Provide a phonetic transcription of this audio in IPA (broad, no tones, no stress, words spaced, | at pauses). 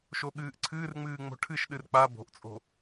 ʃoɠɨːʔǀʰɨːrŋ͡mɨː ŋ͡mo̤ʈʰɨʃɗɨr k͡pa bo̤ʔt͡sʼo̤